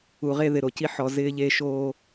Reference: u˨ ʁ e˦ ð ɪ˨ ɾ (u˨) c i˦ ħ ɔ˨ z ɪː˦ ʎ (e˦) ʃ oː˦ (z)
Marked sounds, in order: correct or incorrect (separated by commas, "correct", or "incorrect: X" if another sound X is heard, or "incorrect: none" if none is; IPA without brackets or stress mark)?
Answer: incorrect: o˨, correct, incorrect: none